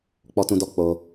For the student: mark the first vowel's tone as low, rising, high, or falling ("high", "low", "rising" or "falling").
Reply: low